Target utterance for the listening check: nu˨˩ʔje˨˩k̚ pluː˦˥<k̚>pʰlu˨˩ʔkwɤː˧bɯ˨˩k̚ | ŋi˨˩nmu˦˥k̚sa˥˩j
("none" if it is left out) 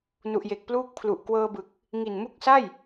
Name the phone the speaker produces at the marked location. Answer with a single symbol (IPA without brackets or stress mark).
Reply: k̚